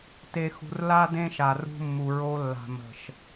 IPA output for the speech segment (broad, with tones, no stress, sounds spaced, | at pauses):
t e˨ x ṳ˨ r l a˦ d ẽ˦ ʃ a˨ r ṳ˦ mː u˨ ɹ o˦ lː a̤˨ m ə̤˨ ʃ